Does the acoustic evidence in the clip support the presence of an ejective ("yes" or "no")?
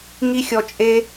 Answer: yes